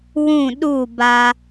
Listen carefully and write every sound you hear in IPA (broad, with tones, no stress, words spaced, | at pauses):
wũ˦˨ɗu˦˨ba˧